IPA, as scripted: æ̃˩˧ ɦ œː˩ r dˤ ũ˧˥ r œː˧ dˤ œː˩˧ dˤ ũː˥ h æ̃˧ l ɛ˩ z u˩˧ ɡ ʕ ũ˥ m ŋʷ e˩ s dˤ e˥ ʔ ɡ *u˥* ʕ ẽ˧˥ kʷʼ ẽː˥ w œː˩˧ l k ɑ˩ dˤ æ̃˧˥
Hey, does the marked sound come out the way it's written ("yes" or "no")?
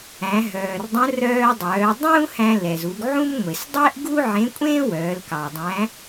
yes